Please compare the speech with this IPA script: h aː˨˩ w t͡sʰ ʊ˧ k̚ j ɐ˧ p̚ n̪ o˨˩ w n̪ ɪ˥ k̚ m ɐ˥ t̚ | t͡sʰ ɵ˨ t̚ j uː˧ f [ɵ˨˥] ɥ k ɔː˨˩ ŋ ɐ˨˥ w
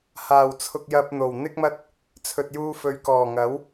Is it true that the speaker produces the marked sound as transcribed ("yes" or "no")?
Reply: yes